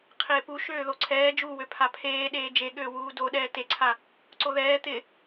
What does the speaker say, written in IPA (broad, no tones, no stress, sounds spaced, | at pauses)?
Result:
qʰ ɪː p u ʃ øː ð o ǀʰ ɛː d͡ʒ u w ø pʰ a pʰ eː ɗ eː d͡ʒ e ɠ øː w uː d o ɗ ɛː t e ǀʰ a | ǀ o ð ɛː t̪ ɪ